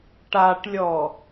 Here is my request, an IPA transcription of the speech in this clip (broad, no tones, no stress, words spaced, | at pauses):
ʈaʈlʲɔ